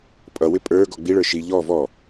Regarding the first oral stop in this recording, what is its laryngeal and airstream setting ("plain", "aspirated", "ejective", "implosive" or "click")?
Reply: ejective